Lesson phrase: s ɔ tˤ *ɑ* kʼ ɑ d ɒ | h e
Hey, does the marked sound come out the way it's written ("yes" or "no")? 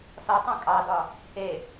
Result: no